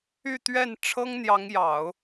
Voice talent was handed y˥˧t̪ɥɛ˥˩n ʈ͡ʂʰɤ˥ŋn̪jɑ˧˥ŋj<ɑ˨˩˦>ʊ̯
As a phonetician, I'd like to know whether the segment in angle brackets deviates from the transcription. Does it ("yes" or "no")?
no